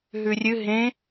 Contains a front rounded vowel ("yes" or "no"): no